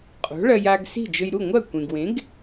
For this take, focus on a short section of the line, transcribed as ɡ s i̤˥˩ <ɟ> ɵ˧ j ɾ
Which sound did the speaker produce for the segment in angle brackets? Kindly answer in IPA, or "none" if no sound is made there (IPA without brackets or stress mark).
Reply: d͡ʒ